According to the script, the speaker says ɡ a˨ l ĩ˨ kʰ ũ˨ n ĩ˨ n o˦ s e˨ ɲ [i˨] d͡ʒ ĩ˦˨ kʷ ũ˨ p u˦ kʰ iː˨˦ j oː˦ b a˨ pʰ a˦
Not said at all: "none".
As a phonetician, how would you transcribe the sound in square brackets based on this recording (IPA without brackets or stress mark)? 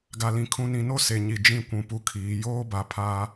i˨